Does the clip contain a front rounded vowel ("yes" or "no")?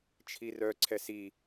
yes